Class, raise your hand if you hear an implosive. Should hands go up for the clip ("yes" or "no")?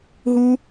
no